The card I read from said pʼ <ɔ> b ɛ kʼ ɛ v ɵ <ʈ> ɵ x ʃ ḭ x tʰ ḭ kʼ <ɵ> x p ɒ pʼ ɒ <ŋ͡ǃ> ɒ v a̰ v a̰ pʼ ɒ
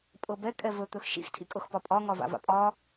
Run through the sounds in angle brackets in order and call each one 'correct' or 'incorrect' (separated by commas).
incorrect, incorrect, incorrect, incorrect